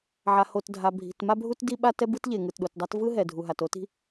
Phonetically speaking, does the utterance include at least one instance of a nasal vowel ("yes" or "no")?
no